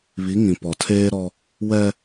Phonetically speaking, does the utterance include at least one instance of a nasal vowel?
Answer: yes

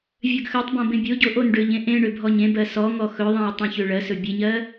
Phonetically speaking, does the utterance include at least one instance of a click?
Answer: no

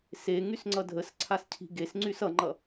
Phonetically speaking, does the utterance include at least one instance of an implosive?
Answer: no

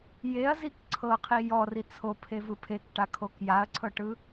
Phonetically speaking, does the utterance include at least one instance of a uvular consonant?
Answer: yes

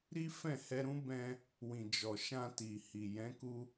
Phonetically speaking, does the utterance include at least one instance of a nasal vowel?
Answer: yes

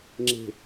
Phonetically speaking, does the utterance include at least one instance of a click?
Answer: yes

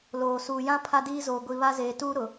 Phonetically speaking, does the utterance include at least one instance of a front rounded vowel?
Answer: no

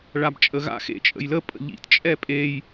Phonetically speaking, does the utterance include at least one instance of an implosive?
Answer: no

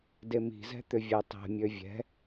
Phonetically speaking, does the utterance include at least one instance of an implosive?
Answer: no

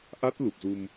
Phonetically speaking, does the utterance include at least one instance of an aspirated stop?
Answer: no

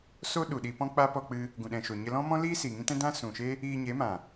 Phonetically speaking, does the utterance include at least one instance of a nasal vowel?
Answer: yes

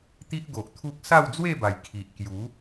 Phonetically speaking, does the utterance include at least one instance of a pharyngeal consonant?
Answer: no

